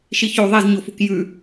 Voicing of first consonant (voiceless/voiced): voiceless